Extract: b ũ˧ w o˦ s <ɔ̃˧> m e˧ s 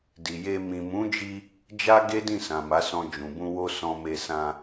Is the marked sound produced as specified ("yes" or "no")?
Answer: yes